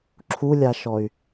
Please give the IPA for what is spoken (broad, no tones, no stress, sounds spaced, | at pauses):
ǁʰ u lʲ a ʃ ɔ y̯